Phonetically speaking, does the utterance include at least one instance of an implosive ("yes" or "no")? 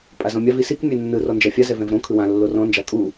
no